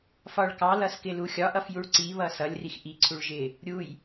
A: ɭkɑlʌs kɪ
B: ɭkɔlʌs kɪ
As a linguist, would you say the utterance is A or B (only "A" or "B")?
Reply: A